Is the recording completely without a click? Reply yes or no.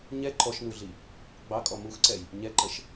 no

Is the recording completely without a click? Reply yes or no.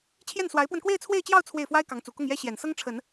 yes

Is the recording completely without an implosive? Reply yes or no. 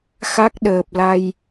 no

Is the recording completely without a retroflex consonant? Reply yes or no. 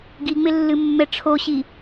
no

